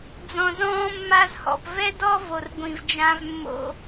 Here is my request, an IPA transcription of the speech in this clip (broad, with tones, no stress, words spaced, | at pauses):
d͡zɔ̃˨zɔ̃ː˦mːa˦zhɔ̰˨p vɛ˦dɔ˦ vo˨rɡʷĩ˨vd͡ʒã˦v mːo̰˦